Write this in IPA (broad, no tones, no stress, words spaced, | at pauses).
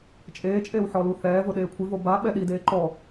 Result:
t͡ʃʼeːt͡ʃʼeːw ħɔluθɛːvʊ ɗeːkʷʰɪvo ba ɓɛɗideː ǃɔ